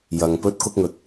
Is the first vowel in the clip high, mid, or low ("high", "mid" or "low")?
low